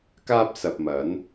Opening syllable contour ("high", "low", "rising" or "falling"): high